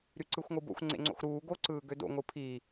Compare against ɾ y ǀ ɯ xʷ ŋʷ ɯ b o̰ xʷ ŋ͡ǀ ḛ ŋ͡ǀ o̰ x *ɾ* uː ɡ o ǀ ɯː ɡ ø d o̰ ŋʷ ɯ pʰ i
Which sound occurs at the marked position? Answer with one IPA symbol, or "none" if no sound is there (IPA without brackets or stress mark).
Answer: ɾ